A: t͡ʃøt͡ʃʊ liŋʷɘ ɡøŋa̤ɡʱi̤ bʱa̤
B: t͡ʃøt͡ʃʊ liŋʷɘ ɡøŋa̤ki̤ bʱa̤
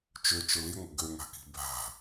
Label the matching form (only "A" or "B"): B